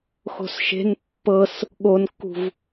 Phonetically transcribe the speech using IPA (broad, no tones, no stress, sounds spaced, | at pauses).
x o̤ s ʃ e̤ n pː ɤ s | ɠ o n kː ṳ v